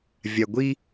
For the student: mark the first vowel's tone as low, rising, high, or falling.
low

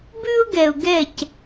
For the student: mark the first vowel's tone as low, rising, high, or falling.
high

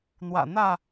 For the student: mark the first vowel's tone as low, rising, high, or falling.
low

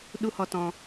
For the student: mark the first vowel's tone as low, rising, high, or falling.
high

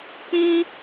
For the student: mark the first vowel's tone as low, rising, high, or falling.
high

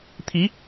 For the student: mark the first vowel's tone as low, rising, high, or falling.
rising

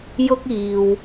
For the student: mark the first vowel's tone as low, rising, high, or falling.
high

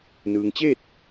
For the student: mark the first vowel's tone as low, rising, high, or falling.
low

